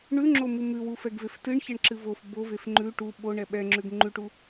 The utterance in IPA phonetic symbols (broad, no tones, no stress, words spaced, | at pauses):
ɳʉŋ͡ǁomu mʉwufɛɡvef tɨɳçɛɳǁɨ vof bovef ŋ͡ǃʉ ʈu ɓoɳɛ ɓɛŋ͡ǁʉɡ ŋ͡ǃʉʈu